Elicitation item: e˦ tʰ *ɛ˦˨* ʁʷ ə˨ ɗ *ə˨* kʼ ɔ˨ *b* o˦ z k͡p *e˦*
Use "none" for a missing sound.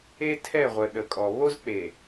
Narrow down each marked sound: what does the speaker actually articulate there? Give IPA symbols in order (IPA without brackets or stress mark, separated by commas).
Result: ɛ˦˨, ə˨, β, e˨